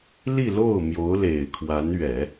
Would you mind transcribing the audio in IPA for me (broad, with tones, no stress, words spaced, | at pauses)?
li˥˧lo˥˩ʊ̯ mjo˧˥ʊ̯le˨˩ɪ̯kʰwa˧˥nɥɛ˨˩˦